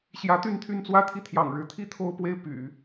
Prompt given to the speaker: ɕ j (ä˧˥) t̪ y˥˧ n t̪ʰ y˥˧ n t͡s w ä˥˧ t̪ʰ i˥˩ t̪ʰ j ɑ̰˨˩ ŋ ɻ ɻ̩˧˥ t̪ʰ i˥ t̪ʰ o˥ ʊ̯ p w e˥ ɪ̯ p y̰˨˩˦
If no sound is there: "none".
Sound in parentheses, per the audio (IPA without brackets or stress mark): ä˧˥